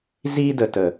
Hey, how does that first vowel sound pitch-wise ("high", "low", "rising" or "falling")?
high